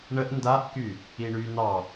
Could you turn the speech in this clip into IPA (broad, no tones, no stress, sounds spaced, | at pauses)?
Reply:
ɳ ə ʔ n d a ʔ k y | i ɳ y n ɑ